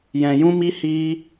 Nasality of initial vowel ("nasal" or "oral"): nasal